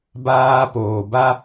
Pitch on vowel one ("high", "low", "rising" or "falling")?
high